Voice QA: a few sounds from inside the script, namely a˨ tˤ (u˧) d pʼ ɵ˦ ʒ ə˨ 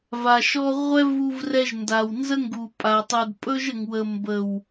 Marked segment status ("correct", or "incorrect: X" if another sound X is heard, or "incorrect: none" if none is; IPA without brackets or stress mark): incorrect: u˨